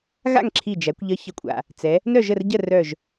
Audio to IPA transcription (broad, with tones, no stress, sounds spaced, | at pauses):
ɣ a̰˥˨ ŋ ǁʰ i˧˩ d͡ʒ æ˩˧ kʷ ʎ ə˨˥ ç ə˩ kʷʼ a̰˩ | t͡s ɛ˩˧ | n œ˥˨ ʒ ə˥˨ r ɟ ə˥˨ r œ˧˩ ʒ